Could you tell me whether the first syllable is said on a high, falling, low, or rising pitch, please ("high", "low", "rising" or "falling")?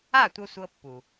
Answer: falling